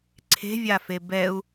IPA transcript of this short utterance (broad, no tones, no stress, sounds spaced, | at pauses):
ǀʰ e̤ vʲ a f e b ɛ u̯